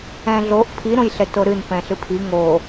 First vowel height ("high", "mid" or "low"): mid